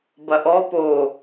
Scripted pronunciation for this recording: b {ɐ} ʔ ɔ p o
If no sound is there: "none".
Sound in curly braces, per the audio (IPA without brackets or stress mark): ɐ